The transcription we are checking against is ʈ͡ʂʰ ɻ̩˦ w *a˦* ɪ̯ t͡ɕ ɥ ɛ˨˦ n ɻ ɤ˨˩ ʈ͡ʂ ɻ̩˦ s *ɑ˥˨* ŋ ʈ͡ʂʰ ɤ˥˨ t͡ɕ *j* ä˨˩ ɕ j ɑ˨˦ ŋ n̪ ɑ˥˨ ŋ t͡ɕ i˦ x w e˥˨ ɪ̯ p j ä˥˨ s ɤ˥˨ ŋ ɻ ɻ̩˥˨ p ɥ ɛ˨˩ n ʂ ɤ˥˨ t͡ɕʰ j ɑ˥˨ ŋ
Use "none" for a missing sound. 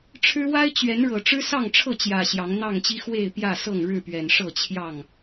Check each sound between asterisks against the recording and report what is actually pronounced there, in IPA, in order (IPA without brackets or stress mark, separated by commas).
a˦, ɑ˥˨, j